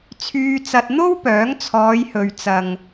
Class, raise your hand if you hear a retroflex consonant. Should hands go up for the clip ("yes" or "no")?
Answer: no